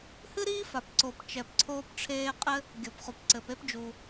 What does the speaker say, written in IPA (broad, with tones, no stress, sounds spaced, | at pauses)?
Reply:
h ɨ˥ ɾ iː˥ f a˩ p ǀ o˩ p t͡ʃ ɛ˩ p ǀʰ oː˥ p ʈ͡ʂʰ eː˥ qʼ ɘ˥ | ɡʲ o˩ p χ u˩ p ǀ ɘ˩ p e˥ p d͡ʒ u˩